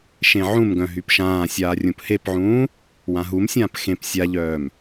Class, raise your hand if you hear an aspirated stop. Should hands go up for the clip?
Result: no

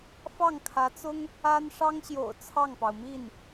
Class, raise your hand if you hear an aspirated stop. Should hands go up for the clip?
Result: yes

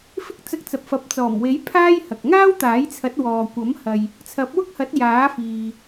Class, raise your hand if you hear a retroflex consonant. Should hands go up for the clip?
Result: no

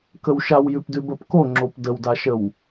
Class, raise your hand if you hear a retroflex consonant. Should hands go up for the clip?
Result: no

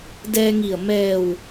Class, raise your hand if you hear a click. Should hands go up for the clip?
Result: no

